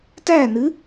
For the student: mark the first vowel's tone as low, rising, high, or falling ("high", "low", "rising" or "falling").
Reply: falling